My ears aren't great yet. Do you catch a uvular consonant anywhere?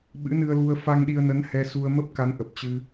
no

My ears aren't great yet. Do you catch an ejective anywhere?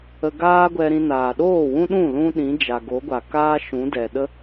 no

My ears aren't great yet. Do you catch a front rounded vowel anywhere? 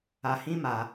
no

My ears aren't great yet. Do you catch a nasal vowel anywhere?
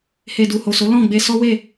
yes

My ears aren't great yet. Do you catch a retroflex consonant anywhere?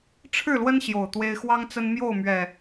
yes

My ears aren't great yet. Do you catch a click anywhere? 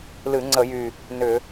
yes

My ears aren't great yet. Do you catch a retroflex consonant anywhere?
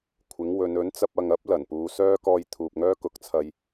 no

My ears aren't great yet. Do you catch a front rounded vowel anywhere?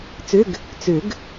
yes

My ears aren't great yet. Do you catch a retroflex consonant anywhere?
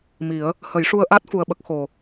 yes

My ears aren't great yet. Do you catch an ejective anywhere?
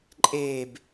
yes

